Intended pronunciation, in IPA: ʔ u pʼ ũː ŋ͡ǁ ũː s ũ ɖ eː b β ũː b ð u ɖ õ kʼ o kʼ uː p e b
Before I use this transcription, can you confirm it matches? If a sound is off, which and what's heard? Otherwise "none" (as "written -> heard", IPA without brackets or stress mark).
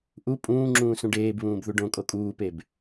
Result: none